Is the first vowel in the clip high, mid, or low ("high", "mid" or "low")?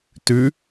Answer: high